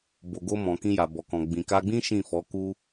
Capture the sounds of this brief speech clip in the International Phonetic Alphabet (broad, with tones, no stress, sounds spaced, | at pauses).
b o˨ ɡ o˧ m ɔ̃˨ k ĩ˧ j a˨ b ɔ˨ k ɔ̃˨ ɡ͡b ĩ˨ k a˧ ɡ͡b ĩ˦ ʃ ĩ˦˨ f ɔ˨˦ k u˦